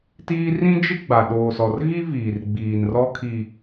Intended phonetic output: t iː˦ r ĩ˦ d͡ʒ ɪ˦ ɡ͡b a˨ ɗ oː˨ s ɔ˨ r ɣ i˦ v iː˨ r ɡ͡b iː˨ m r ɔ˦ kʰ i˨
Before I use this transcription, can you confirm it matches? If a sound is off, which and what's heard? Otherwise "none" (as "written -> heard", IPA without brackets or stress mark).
m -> n